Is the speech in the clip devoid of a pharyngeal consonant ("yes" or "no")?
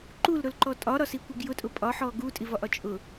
no